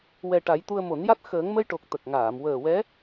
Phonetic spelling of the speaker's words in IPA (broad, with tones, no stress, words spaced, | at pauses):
wɛ˨˩ ʈa˨˩˦jt̪u˧ə̯ mo˨˩˦nja˦˥t̚ xəː˨˩˦ŋmə˧jʈo˨˩k̚ t̪ə˨˩k̚ŋaː˨˩˨m wəː˨˩wɛ˧˥